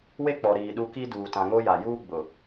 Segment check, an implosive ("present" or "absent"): present